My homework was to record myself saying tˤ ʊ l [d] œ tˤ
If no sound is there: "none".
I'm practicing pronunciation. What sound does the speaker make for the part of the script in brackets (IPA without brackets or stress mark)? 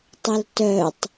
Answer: t